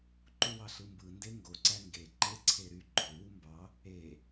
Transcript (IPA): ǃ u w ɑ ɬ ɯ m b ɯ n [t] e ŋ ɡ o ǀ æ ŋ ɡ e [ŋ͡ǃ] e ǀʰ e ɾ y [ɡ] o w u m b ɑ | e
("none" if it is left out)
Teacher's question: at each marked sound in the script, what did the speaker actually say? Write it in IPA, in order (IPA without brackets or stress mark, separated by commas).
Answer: d, ǃ, ɡ͡ǃ